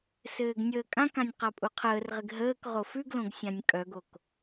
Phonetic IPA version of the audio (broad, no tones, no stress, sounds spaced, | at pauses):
s ɘː ɡ nʲ əː kʼ ã k ã nʲ q a pʼ u qʰ əː r ʁ ɪ ɡ ɦ əː k ʁ o f ʉ ɡ l õ ɡ sʲ ã nʲ kʼ œ ɡ o k